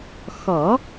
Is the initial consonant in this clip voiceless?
yes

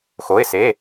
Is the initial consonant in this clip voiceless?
yes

